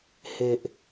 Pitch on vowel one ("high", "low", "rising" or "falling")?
low